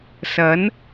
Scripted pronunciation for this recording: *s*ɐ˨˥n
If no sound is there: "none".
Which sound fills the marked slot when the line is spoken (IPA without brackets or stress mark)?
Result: s